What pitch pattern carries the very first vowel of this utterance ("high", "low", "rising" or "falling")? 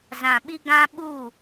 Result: low